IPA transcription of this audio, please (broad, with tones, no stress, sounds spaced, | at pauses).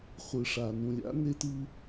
χʷ ɯ˨ ʂ a˨ n ũ˨ lʲ a̰˨˦ n e˦ t ɯ˦